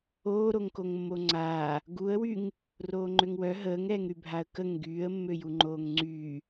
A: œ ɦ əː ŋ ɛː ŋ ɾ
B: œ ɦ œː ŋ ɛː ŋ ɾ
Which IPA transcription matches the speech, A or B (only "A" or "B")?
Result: A